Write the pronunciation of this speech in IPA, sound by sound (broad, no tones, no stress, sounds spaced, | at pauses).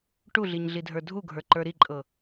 ʈ u ɮ i ɲ ɮ i dʱ ə˞ dʱ u ɡʱ ə˞ ǃ ə˞ ɾ i ǃʼ ɤ